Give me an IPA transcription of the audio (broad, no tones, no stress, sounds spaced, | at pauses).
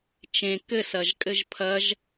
t͡ʃ ẽ k ɘ s ɐ ʒ kʼ ɘ ʒ pʰ ɐ ʒ